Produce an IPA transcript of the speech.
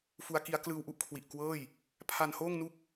fu˦˥a̯ki˦˥a̯ klɯː˧wʔu˥˩ʔkʰwi˨˩ʔ kwɤː˥˩j | pʰa˧nhoː˥˩ŋnu˥˩k̚

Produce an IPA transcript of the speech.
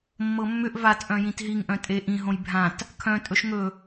mːɤmːʏʔ vat ʔœ̃jĩtɦiŋ ʔœ̃tʼe ʔĩ ɦõjbʱãt | kʰœ̃ tʼɵʃŋɵ

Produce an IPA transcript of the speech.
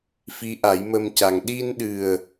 fi˧˥ʔa˨˩˦jmə˧mca˨˩ŋ ɗi˧nɗɨ˨˩ə̯

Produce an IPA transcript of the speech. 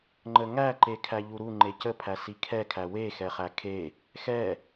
ŋ͡ǃəŋæ ǃekʰæʎuɾu ŋ͡ǃecəpʰæ sikʰɛkʰæ wexɛχæ kʰe | xɛ

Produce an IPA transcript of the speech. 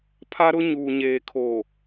pʰa˦ɾʊ˦ ɲuː˨ɲeː˨kʰo˨

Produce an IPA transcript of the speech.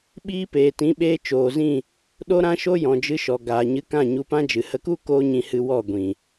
ɓiː˦peː˨ tĩ˨˦ɓeː˧t͡ʃoː˨zĩ˦˨ | ɗo˦ɾã˦ʃo˦ jɔ̃˨d͡ʒɨ˧ʃɔ˨ ɡaː˨ɲɨ˧kã˦˨ ɲu˧pã˦d͡ʒɨ˨ hə˧ku˦ koː˦ɲĩ˧hɨ˧ wɔ˦˨ɡʷĩ˨

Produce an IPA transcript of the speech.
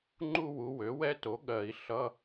ŋ͡ǃu˥˧wu˩˥ wø˩˥wɛ˧˥to˩˥ ɠɜ˨˩˦i̯ ɬʌ˧˥˧

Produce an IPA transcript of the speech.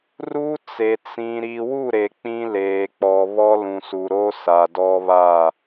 ru˦t͡se˨ t͡sĩ˨ ɾiː˨wu˦˨ ɾe˨k͡pĩ˦leː˨ k͡pɔ˨βɔ˦ lũ˨su˨ɾo˦ sa˨dɔ˦βa˦˨

